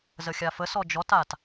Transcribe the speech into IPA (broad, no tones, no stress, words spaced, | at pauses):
zəxʲafəsɔ d͡ʒɔtat